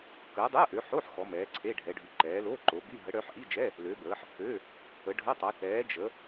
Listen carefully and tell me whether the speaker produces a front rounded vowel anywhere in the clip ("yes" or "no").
yes